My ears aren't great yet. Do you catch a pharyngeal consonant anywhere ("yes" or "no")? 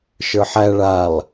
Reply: yes